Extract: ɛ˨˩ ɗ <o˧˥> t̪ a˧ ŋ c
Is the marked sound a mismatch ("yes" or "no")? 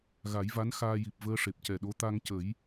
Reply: no